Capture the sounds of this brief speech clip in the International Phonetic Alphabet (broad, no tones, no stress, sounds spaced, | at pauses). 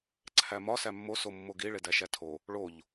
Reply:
ǀʰ æ m ɒ s æ mː o s o mː o ɡ i ɭ e d æ ʃ æ tʰ o | ɭ o ʎ